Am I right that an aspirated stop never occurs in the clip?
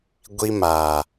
yes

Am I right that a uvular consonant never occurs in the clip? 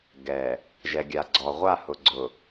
no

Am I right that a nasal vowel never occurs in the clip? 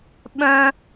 no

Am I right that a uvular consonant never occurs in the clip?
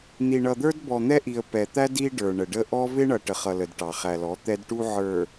no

